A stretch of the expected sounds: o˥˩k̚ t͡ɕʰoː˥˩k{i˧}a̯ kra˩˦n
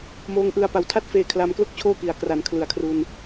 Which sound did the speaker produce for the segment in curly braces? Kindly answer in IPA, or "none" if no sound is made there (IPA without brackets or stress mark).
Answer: i˩˦